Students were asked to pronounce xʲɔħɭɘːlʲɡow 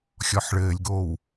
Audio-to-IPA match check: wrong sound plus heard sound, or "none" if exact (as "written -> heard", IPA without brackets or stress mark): none